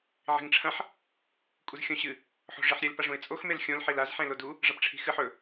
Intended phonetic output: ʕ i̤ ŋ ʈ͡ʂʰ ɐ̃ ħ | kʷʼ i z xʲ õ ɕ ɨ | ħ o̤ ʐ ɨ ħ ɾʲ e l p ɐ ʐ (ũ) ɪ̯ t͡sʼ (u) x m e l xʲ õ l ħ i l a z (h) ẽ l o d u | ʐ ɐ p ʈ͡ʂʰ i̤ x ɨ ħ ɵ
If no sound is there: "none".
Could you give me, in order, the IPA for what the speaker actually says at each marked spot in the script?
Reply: ũ, o, ħ

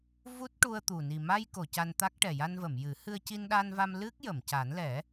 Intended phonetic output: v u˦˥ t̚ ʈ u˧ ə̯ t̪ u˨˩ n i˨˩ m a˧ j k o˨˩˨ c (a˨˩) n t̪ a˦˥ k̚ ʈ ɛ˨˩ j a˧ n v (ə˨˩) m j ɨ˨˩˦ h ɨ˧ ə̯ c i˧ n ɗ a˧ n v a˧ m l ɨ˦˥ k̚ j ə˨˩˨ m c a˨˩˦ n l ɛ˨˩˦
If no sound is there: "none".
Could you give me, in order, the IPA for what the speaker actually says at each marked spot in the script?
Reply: a˧, ə˨˩˨

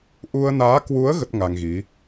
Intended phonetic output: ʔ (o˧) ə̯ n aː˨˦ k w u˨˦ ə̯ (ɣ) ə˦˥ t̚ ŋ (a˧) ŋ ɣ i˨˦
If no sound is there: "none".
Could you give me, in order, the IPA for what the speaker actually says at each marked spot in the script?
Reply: u˧, ɣ, a˧

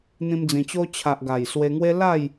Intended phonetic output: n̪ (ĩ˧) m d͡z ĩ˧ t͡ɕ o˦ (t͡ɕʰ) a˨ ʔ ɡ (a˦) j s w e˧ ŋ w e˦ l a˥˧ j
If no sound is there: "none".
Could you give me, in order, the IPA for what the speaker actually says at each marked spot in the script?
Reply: ĩ˧, t͡ɕʰ, a˨˩

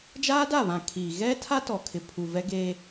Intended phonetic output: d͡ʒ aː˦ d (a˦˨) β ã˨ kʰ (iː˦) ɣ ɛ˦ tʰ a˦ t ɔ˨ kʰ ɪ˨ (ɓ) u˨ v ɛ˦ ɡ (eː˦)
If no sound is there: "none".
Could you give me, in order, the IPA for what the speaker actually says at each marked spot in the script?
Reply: a˦˨, iː˨, pʰ, eː˦

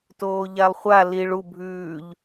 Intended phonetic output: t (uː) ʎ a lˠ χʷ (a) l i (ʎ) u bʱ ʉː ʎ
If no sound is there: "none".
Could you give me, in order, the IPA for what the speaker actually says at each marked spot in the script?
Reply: oː, a, ɭ

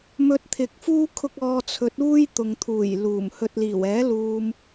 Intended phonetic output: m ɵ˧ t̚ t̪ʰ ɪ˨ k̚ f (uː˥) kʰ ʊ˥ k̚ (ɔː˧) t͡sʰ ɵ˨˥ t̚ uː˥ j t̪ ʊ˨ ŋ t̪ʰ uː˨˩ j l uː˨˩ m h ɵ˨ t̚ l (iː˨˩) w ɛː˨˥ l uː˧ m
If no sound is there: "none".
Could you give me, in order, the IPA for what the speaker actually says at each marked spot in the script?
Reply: uː˥, ɔː˧, iː˨˩

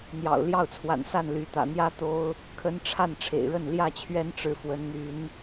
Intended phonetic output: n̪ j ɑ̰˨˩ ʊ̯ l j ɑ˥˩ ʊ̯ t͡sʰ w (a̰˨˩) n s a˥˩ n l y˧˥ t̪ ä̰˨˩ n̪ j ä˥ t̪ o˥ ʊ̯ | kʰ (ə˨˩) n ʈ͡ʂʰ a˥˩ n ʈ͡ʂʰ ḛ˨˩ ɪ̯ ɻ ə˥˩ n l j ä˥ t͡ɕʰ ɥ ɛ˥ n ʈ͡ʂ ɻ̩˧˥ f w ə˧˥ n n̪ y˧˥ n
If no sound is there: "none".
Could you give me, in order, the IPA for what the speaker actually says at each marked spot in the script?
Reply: a̰˨˩, ə˧˥

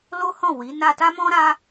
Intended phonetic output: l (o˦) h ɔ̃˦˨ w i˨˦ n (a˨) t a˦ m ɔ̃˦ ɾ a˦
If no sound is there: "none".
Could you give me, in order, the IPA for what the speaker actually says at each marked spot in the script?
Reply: o˦, a˧

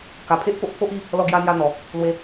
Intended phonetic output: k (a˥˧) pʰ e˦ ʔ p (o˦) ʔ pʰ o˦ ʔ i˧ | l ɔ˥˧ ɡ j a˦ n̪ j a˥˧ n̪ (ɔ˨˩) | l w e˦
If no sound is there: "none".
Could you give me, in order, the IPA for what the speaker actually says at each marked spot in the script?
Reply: a˨˩, o˦, ɔ˨˩

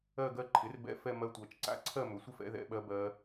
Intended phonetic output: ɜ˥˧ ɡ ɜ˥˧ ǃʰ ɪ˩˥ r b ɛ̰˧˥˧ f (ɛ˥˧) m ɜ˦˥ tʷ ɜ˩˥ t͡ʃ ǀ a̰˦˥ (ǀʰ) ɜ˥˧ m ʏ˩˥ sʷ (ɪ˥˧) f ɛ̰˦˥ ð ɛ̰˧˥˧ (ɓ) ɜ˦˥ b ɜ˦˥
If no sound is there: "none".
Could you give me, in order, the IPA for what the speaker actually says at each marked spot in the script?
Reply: ɛ˥˧, ǀʰ, ɪ˥˧, ɓ

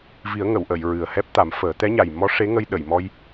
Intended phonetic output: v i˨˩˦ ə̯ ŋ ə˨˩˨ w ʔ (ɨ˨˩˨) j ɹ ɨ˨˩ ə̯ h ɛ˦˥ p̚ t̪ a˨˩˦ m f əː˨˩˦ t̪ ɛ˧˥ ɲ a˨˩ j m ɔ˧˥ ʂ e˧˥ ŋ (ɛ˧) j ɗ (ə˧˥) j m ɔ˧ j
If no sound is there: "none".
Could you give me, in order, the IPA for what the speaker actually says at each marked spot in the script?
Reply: ə˨˩˨, ə˧, ə˨˩˨

